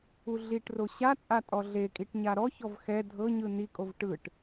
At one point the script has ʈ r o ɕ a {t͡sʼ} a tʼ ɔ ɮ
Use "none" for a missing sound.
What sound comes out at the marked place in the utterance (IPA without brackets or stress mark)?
t͡sʼ